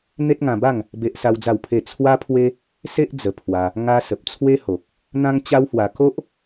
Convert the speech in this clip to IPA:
n̪e˦t̚ŋã˧ba˥˧ŋ | be˦ʔsa˦wd͡za˥˧wpʰe˥˧ t͡sʰwa˦pʰwe˦ | se˦ʔ d͡zə˧pʰwa˧ | ŋa˦ sə˨p̚ t͡sʰwe˦ho˨k̚ | n̪ã˦ŋt͡ɕa˦whwa˧ ko˦ʔ

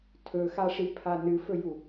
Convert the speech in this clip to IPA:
tʰɵxaʂipʰa nɨfɵju

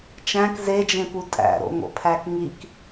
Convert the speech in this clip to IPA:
t͡ʃæ̃k zed͡ʒẽpu tʼæ̰ɾo̰ ŋo̰pʰækŋik

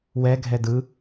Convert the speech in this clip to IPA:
wɛɡʱɛ dɯ

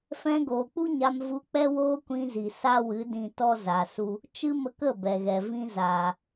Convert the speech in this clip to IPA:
fɛ̃˧ɡoː˨k͡pu˦ ɲa˧mvu˧ k͡pɛ˦woː˦kʷĩ˧zi˨ sa˦wɨ˨˦ dĩ˧tɔ˦ za˨su˧ | t͡ʃɨ˦mə˧kə˦˨ bɛ˨ɣɛ˨ vĩ˧zaː˨

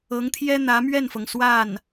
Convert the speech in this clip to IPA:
ɤ˧˥ŋt̪ʰjɛ˥ n̪ä˧˥mɥɛ˥˩nfɤ˩ŋ swa˥˩n

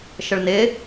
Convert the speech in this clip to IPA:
ʃəɭnɪ

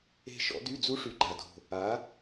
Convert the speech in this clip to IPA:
e̤˦˨ʃɔ̰˨˥dy˧˥˧d͡zu˦˥ ʂy˨˥ɡ͡ǃa˨˩do̤˨˩ | a˩˧

